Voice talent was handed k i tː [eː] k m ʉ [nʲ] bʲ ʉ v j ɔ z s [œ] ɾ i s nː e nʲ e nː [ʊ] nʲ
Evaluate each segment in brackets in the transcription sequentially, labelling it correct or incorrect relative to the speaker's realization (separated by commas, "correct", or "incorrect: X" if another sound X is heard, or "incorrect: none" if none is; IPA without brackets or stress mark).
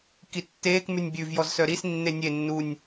correct, correct, correct, incorrect: u